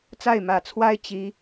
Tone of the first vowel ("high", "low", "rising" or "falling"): falling